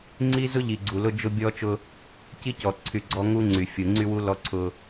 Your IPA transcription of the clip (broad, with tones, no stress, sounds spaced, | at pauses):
ŋ͡ǀ i˦ z ʊ˦ ʎ i˨ ɡ͡ǀ u˨ l ʊ˦ d͡ʒ ʊ˦ bʲ ɔ˦ t͡ʃ ʊ˦ | c i˦ c ɔ˨ ǀʰ y˨ ɡ͡ǀ ɔ˦ ŋ u˦ ŋ͡ǀ y˨ fʲ u˨ ŋ͡ǀ y˦ w u˦ l ɔ˦ ǀʰ ʊ˦